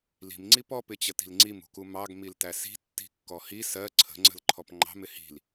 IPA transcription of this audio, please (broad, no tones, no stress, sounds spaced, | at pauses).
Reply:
l i̤ m ŋ͡ǀ i p ɔ p ɪ t͡ɕ ə t i̤ l ŋ͡ǀ i m ṳ k u m ɑ ɡ m i l t æ s i̤ tː i̤ kː ɔ h i s ɜ ǀʰ ə̤ ŋ͡ǀ ə̤ l ǃʰ ɔ p ŋ͡ǃ ɑ̤ m ɪ h i̤ l